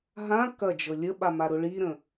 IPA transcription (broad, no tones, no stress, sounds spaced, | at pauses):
ɦ ã k ɐ d͡ʒ ɤ lʲ ə ɓ a m a ɾ ʊ ɭ i ɾ ə̃